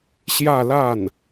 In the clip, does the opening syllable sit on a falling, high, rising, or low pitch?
falling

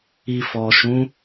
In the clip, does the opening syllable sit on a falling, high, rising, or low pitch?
low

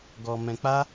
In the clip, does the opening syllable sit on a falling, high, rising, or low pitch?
low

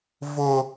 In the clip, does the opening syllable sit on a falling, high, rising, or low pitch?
high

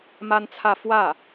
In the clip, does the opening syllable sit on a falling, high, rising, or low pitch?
high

